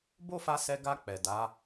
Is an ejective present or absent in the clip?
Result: absent